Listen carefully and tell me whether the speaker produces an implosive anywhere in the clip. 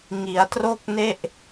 no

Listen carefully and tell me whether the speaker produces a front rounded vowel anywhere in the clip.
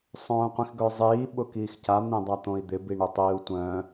yes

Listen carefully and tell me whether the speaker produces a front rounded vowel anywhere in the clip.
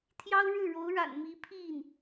no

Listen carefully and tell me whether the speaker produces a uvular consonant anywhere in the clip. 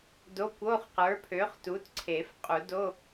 yes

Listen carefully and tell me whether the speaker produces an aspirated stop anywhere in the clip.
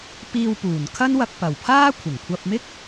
yes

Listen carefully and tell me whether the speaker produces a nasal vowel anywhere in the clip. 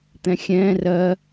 yes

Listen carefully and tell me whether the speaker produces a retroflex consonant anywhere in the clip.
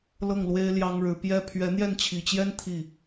yes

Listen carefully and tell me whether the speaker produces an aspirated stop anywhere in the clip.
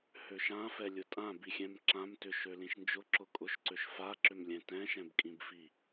no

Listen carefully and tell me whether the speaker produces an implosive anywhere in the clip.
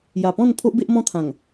no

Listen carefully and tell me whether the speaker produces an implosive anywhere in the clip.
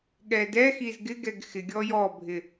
yes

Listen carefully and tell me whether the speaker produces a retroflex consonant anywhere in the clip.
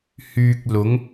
no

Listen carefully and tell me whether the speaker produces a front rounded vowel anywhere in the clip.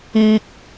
no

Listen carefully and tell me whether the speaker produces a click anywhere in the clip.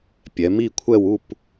no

